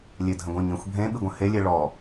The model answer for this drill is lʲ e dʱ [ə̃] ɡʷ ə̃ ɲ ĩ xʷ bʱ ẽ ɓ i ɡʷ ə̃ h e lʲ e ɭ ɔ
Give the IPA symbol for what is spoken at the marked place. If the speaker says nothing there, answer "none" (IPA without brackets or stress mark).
ə̃